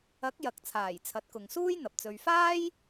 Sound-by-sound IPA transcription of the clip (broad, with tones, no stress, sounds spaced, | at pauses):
ɐ˨˥ k̚ j ɐ˨ k̚ t͡sʰ aː˨˩ j t͡sʰ ɐ˨˥ t̚ k ʊ˨ ŋ s uː˥ j n̪ ɐ˨ p̚ t͡s ɵ˨ ɥ f aː˥ j